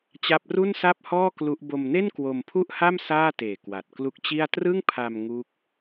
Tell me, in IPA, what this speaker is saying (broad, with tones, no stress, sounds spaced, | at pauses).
t͡ɕ a˦˥ p̚ r u˥˩ n s a˥˩ p̚ h ɔː˥˩ k l u˦˥ ʔ b o˧ m n e˥˩ n k w o˧ m pʰ u˥˩ ʔ h a˥˩ m s aː˥˩ t eː˨˩ k w a˨˩ t̚ k l u˦˥ k̚ t͡ɕ i˥˩ a̯ t r ɯ˥˩ ŋ pʰ a˧ m ŋ u˦˥ k̚